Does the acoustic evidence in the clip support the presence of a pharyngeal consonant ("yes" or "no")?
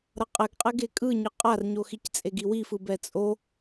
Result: no